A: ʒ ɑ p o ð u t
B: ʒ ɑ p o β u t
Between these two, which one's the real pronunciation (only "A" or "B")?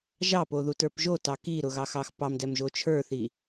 A